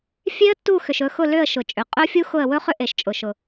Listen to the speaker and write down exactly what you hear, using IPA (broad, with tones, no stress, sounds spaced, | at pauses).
fʲ e˦˥ ə̯ tː u˦˨ x ʏ˨ ʃ ɵ˦˨ x ʊ˦˨ l ʏ˦˨ ə̯ ʃ ʊ˨ t͡ʃʼ ʏ˨ qʼ ɵ˦˥ fʲ u˦˥ x ʊ˦˨ ə̯ w ɵ˦˥ χ ʏ˦˥ ʔ e˨ ʃ t͡ʃʼ ʊ˨ ʃ ʊ˨